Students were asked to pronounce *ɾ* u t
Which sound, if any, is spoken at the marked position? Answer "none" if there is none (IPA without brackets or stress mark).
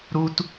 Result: ɾ